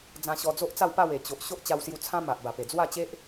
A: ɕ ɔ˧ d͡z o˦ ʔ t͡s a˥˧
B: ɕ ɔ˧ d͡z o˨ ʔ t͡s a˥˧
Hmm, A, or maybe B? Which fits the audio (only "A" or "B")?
A